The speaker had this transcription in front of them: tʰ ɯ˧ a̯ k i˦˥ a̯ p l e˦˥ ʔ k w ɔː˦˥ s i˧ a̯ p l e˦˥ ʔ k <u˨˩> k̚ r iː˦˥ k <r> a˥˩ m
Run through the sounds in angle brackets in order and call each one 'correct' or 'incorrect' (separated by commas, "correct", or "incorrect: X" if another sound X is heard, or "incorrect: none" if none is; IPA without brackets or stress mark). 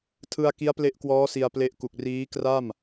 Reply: correct, correct